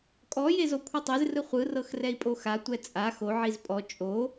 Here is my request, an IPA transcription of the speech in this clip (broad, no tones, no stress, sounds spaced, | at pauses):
kʼ ɔ j e z o kʷʰ ɯ tˤ e z r ɯ χʷ ɯ r ɤ x r ɛ i̯ pʼ o x a tʷ ɛ t͡sʼ a x o ʕ i z pʼ ɔ t͡ʃʼ o